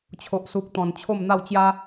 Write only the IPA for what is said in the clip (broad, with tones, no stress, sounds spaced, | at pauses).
t͡ɕʰ o˨ ʔ s u˨ k̚ t̪ ɔ̃˨˩ n t͡ɕʰ o˥˧ m n̪ a˥˧ w t͡ɕ j a˦